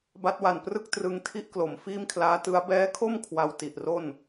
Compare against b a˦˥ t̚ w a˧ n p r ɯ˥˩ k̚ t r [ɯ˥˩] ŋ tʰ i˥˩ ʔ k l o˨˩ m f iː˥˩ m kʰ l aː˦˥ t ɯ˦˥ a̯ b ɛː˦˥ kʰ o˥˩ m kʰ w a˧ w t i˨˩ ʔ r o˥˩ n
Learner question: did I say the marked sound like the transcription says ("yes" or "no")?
no